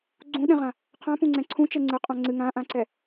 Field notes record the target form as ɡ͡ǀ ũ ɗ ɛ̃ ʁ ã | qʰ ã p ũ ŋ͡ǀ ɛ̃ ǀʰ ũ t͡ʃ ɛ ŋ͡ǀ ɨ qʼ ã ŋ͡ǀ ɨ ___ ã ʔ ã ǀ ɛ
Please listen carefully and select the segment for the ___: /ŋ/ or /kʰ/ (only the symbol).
ŋ